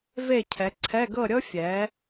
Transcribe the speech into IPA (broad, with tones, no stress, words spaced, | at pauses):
ve˥˨cʰɛ˨˥ ǀʰɛ˧˥˧ɡɤ˥˨ɾʲɤ˥ fʲɛ˨˥